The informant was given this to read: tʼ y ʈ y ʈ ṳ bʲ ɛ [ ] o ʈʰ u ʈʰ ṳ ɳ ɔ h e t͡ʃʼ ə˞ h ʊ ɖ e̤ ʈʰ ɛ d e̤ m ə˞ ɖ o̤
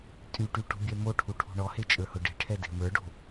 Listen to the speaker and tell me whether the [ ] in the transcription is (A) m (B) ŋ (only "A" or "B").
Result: A